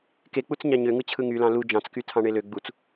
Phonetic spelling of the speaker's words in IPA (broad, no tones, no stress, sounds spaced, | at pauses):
k e k͡p u t͡s ɲ ɑ ɲ ø ŋ ɯ t͡ɕʰ ɯ ŋ y l ɑ̃ l u d͡ʒ ɑ̃ t͡s k y tʰ ɑ̃ ɳ e l ø ɡ͡b u t͡s